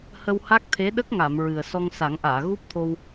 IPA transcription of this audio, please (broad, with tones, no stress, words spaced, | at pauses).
hə˧wha˦˥k̚t̪ʰe˧˥ ɗə˦˥k̚ŋa˨˩˨m ɹɨ˨˩ə̯ sɔ˧ŋsa˨˩˦ŋʔaː˨˩˨ ɣu˦˥p̚t̪ʰo˧w